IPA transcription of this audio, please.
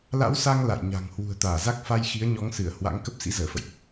la̰˧˥wsa˧ŋ la̰˧˨jɲa̤˨˩ŋ hwṳ˨˩ə̯t̪aː˧˩za˦˥k̚ fa˧j xi˨˦ə̯ɲɔ˨˦ŋsɨ˧˩ə̯ hwa̰˧˥ŋ kə˦˥p̚sḭ˧˥zəː˧˩fə̰˧˨jʔ

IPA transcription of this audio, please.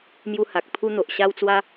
mju˧ ha˨k̚pʰu˧n̪o˨ʔ ɕa˧w t͡swa˧

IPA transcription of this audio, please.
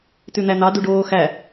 tʉn̪æn̪ɑ duɖoː xæ

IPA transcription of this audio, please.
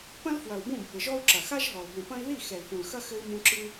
pɐ̃˦l fwɐ˨u̯bũ˦˨bʱɘ˨ʒɔ˦u̯ ǁɐ˨xa˦ʒɦɔ˨l ɦũ˨pɐ̃˦i̯ ði˦˨ xɛ˨lfũ˨lxɐ˦ xɘ˦i̯mũ˦ ǁɨ˦

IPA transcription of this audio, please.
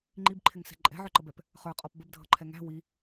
ŋ͡ǃibǃʰɪŋsɛ̤ ǃʼɛ̤ʕə˞ǃəbɛp | χə˞qʼɔp bəbdʱʌǃʰɛ ŋæ̤ wi

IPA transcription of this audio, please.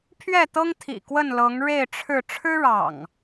pʰɥɛ˥˨t̪ɤ˦ŋt̪ʰḭ˨˩ kwə˥˨nlɤ˨˦ŋɻe˥˨ɪ̯ ʈ͡ʂʰɻ̩˥˨ ʈ͡ʂʰɻ̩˦ɻɑ̰˨˩ŋ

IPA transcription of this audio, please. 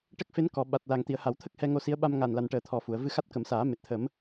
ʈə˦˥k̚fe˧˥nkɔ˨˩˨ ɓa˨˩t̚la˨˩ŋ t̪i˨˩˨ə̯ha˨˩˨wt̪ʰə˦˥k̚ hɛ˧ŋo˧si˧˥ə̯ ɓa˧mŋa˨˩n la˨˩nʈəː˨˩ t̪ʰɔ˨˩fu˨˩˨ə̯ vɨ˧xa˦˥t̚kə˨˩˦msaː˨˩˦ me˨˩t̚t̪ʰə˨˩˦m

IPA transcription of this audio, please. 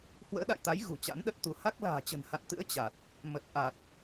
hwə̰ː˧˥ɗa̰˧˨jt̪a˨˦j ɣṳ˨˩t͡ɕa̰˧˥nɗə˦˥t̚t̪u˨˦ ha˦˥k̚ la̤ː˨˩t͡ɕə̤˨˩nha̰˧˨nt̪ɨ̰˧˥ə̯ t͡ɕa˨˩t̚ | mə˨˩t̚ ʔa˨˩t̚

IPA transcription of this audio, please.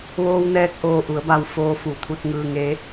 ʋoː˧wnɛː˧k̚ ʔoː˧˩ʔu˩˧ə̯ba˧˩w foː˧fu˩t̪ʰu˧t̚ ŋɯː˧ŋe˧˥

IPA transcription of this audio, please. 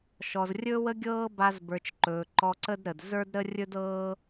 ʃɔ˨zrʲɵː˦wə˦ ɡʲɤː˦ ba˧zbə˞˨t͡ʃ ǃɵː˨ǃɔ˧ǀə˦dɾə˨d zə˞˦dɾə˦ rʲɵ˦dɤː˦

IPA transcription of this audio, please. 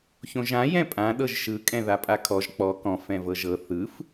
çõʒã jɛ̃pʼã ɗɤʒʃɯ kʼɛ̃ðapʼakʰɔʒ k͡pɔ kɔ̃f ɛ̃vɤʒɤ θɯf

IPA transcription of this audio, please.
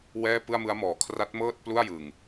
wɛː˥˩pɯ˥˩a̯mɯ˦˥a̯ mɔː˩˦ kʰra˦˥t̚mɤː˥˩t̚ plu˥˩a̯jɯ˨˩ŋ

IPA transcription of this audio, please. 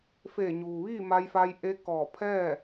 feː˧˩ɲuː˩ʋiː˥˨ ma˧jfa˧jʔe˧˥ kɔː˧˩pʰɛː˥˨

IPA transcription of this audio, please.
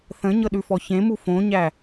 θə̃ɲɤɗʉfɔ çẽmu fõɲæ

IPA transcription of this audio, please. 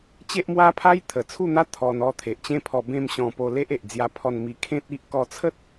t͡ɕe˦ʔmwa˦pʰa˦jt̪ʰə˨˩ t͡sʰu˥˧n̪a˦ t̪ʰɔ˧nɔ˥˧ t̪ʰe˨ʔt͡ɕẽ˦pʰɔ˧ bẽ˥˧mɕɔ̃˧ po˧le˦ʔ e˨ʔd͡zja˧pʰɔ˧nmi˧ kʰẽ˦t̚i˦ʔ kɔ˧t͡sʰə˦t̚

